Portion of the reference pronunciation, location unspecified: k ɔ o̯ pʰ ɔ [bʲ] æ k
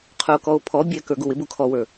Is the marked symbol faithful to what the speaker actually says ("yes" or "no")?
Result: yes